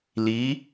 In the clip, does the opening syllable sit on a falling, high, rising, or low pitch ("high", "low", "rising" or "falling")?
rising